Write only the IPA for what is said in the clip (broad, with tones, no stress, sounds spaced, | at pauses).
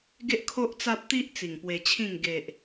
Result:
ɡ e˦ ʔ kʰ o˦ ʔ t͡s a˦ p̚ t̪ i˦ ʔ t͡s i˨˩ ŋ p w e˧ t͡ɕʰ ĩ˥˧ ŋ ɡ e˨ ʔ